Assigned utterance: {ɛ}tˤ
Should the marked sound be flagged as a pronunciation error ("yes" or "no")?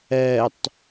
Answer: no